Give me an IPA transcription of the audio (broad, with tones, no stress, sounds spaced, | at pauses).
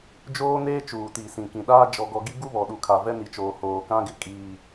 d͡ʒ oː˦ n eː˦ t͡ʃ uː˨ t iː˨ s ĩ˨ k ĩ˨ ɗ aː˦ d͡ʒ ɔ˨ ɡ ɔ˨ ɡ i˦ ɡ u˦ β ɔ˨ ɗ u˨ kʰ a˨ v ɛ˦ n i˨ t͡ʃ oː˨ h oː˨ k ã˦ ɡ ɪ˨ kʼ iː˨